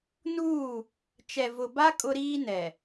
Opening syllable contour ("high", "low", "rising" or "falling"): falling